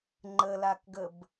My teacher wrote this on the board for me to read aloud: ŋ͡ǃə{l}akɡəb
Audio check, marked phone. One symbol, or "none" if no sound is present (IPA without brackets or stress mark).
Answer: l